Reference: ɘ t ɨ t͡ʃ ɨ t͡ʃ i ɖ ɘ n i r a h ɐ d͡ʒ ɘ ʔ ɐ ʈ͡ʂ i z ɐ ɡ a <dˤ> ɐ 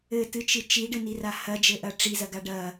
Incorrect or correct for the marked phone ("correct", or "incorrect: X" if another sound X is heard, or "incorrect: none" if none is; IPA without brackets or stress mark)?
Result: incorrect: ɖ